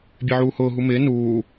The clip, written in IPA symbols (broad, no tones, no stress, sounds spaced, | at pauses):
bʲ e ʕ uː h ʊː ɦ u m ɪː n uː